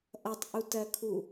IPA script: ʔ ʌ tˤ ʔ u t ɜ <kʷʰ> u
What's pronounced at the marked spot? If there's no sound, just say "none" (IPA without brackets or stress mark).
kʰ